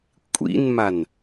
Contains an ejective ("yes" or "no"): yes